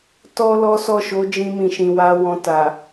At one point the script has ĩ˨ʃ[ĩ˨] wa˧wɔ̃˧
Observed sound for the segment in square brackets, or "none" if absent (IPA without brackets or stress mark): ĩ˨